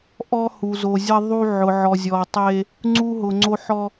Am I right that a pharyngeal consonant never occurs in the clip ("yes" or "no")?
no